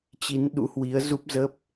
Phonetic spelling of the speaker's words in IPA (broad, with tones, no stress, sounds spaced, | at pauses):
t͡ɕ i˨˦ n ɗ ṵ˧˥ h w i˨˦ ə̯ z u˦˥ p̚ z ə˦˥ p̚